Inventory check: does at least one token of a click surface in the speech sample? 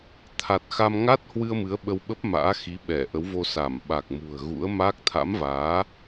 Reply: no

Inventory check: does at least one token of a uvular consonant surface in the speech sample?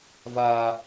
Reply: no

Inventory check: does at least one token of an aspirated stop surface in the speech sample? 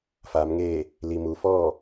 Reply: no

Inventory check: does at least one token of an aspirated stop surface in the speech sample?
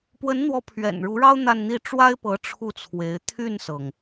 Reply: yes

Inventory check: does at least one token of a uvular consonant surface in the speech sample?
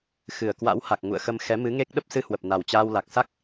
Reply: no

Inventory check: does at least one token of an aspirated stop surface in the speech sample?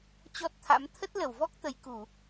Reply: yes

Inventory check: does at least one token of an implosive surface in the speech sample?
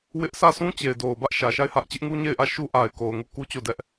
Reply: no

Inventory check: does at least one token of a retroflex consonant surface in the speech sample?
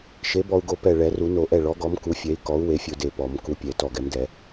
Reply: yes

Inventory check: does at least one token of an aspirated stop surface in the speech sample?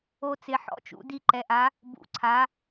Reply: yes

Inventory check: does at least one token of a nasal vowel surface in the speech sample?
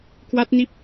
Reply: no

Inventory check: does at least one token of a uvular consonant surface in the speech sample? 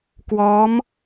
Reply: no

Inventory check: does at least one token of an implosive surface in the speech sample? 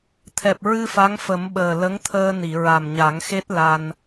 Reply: yes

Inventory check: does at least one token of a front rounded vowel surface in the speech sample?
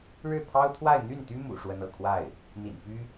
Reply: yes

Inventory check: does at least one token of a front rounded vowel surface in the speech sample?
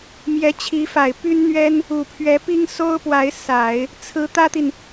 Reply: yes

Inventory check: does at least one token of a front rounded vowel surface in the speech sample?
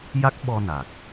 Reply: no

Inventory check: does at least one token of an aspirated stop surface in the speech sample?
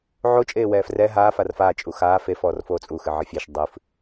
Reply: no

